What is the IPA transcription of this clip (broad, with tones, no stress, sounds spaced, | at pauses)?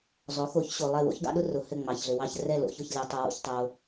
zˤ o˩˥ x o˩˥ ç ɕ o˨ lˠ ɛ˦˨ w o̰˥ ç ɡ ɑ̰˥ ɗ ʊ˥ r ʊ˨ h ɘ˦˨ ŋ͡m ɑ˨ ç ɮ ɘ˨ w ɑ˦˨ ç r ɛ˦˨ l o̰˦˨ ç ʊ˦˨ ç lʲ ɑ˨ tˤ ʊ˨ w o̰˨ ç tˤ o˨